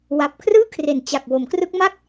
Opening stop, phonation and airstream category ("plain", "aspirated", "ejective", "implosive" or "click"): plain